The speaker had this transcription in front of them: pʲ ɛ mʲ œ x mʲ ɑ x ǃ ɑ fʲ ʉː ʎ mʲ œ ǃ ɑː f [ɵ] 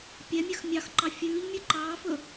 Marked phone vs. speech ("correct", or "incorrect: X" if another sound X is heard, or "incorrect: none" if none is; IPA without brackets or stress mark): correct